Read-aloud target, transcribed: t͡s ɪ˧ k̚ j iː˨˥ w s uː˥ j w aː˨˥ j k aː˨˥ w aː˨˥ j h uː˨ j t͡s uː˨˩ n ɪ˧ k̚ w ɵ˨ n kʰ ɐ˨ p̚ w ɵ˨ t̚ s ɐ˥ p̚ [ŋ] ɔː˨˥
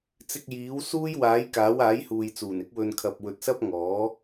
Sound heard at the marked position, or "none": ŋ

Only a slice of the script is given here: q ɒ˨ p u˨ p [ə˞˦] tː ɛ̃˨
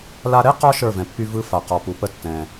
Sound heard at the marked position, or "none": ə˦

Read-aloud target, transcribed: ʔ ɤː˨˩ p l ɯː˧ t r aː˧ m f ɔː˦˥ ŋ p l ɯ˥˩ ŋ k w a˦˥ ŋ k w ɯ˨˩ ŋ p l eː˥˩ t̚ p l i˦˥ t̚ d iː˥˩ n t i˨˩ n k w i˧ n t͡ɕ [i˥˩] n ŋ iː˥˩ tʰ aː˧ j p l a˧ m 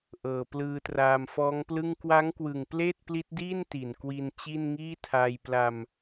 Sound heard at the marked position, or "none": i˥˩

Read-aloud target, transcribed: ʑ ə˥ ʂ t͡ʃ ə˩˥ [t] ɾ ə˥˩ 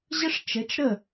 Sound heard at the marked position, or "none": t͡ʃ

